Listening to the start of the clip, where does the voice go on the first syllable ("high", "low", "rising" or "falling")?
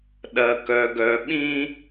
low